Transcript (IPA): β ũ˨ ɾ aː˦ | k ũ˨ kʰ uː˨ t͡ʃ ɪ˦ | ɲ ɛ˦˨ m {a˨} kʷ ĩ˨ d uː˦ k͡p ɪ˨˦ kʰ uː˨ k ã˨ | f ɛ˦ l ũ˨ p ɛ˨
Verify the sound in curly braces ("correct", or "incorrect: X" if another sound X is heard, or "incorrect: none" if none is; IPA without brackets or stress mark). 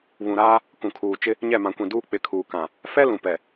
incorrect: ã˨